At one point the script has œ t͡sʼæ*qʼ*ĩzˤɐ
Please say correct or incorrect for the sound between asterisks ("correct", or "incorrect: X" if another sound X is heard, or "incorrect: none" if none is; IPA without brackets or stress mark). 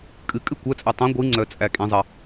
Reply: incorrect: kʼ